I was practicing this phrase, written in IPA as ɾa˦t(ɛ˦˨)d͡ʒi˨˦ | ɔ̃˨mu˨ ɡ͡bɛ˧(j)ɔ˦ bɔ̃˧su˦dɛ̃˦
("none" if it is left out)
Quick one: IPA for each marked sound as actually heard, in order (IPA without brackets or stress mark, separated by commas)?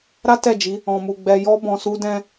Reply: ɛ˦˨, j